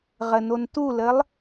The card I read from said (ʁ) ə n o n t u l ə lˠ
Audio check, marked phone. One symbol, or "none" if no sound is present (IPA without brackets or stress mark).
ʁ